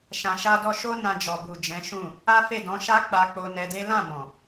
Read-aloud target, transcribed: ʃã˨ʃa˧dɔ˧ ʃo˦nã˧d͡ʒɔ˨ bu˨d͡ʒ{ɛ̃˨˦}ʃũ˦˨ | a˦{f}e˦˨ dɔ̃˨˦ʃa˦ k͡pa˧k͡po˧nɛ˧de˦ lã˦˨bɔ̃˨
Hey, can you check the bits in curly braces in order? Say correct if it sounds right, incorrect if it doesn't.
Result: correct, correct

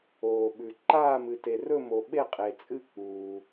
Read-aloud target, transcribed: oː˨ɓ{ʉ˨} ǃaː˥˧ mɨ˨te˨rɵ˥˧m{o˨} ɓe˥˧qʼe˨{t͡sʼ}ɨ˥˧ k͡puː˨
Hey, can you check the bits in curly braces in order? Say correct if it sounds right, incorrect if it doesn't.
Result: correct, correct, correct

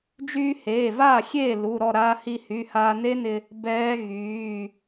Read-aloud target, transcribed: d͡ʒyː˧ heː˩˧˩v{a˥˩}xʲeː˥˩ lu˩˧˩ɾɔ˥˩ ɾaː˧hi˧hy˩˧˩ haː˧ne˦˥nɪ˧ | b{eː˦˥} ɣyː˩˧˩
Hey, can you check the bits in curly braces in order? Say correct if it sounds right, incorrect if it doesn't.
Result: incorrect: aː˥˩, incorrect: ɛː˦˥

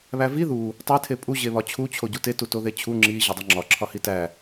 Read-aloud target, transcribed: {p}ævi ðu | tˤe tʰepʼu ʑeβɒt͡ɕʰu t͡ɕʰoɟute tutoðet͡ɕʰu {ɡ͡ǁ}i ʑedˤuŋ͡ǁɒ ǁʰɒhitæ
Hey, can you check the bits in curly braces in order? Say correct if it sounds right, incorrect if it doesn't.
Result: incorrect: β, incorrect: ŋ͡ǁ

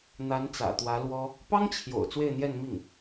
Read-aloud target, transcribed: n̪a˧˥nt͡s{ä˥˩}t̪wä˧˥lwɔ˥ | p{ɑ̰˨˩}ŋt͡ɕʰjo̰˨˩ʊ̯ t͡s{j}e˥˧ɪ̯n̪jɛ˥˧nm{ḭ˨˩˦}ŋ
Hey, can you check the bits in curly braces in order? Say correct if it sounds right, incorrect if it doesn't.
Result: incorrect: ä̰˨˩, incorrect: ɑ˥, incorrect: w, incorrect: i˥˩

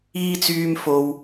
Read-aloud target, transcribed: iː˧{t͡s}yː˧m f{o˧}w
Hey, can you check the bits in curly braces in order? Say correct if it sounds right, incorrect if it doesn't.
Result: correct, correct

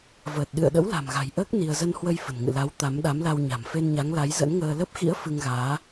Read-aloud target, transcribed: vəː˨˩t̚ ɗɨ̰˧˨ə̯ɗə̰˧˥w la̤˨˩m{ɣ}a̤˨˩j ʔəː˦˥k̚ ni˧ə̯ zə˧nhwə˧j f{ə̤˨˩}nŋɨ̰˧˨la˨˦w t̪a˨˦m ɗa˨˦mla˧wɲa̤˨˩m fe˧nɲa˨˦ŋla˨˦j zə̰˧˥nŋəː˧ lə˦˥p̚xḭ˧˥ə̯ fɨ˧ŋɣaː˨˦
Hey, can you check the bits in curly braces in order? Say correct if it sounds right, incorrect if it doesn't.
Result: correct, correct

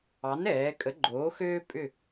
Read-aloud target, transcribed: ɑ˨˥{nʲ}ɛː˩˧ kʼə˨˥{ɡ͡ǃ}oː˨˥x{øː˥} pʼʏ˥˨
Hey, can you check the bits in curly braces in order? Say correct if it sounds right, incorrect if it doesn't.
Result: incorrect: n, correct, correct

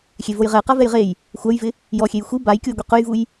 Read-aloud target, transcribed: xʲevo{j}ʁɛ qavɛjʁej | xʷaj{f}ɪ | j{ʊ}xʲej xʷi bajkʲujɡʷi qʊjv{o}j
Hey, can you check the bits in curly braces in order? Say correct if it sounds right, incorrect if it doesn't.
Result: correct, incorrect: v, incorrect: ɔ, incorrect: u

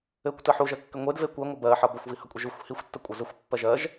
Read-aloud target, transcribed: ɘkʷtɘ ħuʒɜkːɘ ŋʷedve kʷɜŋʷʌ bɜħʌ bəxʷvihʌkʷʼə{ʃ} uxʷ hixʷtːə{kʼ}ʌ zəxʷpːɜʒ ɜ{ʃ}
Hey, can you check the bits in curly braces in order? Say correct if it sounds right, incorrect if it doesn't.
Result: incorrect: ʒ, incorrect: kʷʼ, incorrect: ʒ

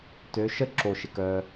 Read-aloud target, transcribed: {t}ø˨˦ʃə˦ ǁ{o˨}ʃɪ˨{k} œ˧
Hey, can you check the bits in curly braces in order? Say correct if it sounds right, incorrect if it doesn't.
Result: correct, correct, correct

